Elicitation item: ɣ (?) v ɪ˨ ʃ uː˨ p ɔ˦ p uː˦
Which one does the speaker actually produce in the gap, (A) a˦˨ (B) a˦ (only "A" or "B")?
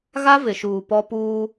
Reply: B